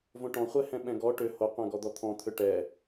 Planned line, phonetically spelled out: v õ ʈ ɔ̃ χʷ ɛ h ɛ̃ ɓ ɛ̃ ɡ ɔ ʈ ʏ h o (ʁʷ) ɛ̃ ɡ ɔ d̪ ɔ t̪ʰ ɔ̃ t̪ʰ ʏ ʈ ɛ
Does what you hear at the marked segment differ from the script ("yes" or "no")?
yes